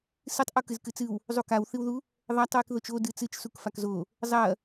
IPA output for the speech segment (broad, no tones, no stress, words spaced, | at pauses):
sɨtˤʔu kɨzkɨt͡sɨw | zˤukawθɨwðu | ðˤatˤwik ðot͡ʃo dɨt͡sɨt͡ʃ sukfakzo | zˤɐ